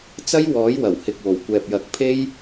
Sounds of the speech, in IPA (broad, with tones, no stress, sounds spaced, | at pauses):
t͡s ɐ˥ j w ɔː˨˥ j w ɐ˨˩ w h ɪ˨ k̚ w o˨˩ w kʷ ɛː˨ p̚ j ɐ˨˥ k̚ pʰ e˥ j